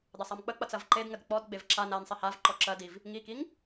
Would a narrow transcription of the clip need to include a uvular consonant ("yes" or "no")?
no